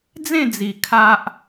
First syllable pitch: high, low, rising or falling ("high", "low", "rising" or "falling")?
falling